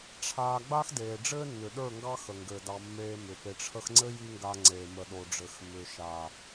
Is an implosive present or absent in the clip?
present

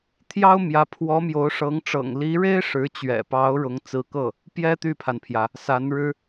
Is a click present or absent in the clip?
absent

